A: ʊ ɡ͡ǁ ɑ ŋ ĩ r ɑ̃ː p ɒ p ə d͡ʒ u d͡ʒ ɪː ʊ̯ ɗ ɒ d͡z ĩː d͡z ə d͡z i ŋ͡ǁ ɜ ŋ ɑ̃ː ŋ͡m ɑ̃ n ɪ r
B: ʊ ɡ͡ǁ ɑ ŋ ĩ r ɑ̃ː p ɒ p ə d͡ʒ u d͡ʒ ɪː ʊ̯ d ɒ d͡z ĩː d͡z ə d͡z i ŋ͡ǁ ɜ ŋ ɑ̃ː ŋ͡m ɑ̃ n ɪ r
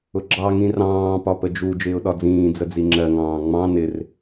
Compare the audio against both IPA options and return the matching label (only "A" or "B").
A